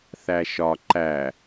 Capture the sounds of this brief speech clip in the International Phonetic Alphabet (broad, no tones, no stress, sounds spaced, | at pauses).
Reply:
θ æ ʃ ɒ ǃ æ